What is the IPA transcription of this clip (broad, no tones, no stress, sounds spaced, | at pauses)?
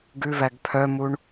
ɡ ʉ v æ ɡ pʰ œ m u ɳ